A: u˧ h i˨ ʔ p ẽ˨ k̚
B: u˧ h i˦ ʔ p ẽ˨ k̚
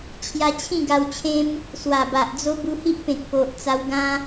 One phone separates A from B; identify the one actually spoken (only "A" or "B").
B